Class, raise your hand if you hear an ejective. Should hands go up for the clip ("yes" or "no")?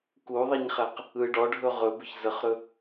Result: no